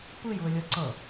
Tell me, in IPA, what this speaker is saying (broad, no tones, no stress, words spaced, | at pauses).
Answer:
pɯjuə̯lʲʌ ǀʌ